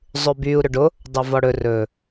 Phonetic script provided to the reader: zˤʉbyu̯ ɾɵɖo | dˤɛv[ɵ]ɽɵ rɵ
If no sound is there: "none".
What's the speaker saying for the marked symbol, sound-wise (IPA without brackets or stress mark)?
ɔ